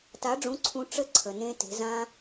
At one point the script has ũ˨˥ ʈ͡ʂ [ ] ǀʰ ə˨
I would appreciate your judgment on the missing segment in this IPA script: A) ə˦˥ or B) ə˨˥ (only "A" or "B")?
A